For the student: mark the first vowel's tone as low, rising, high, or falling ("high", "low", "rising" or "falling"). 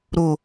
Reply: low